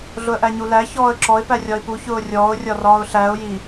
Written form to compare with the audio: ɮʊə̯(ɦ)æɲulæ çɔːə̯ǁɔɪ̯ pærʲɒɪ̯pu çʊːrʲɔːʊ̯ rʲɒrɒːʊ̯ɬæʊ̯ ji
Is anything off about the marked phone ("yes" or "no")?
yes